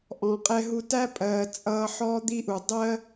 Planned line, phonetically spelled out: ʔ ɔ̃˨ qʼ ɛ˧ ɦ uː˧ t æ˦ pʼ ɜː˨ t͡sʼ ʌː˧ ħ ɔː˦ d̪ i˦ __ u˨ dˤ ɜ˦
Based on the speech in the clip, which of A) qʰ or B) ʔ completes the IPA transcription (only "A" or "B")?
B